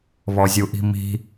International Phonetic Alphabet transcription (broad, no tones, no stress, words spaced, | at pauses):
βɔzʲuʔi̤mi̤